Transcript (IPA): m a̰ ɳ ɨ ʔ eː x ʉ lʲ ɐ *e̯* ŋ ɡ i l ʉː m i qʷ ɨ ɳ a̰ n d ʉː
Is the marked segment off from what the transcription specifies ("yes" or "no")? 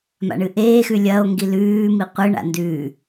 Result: yes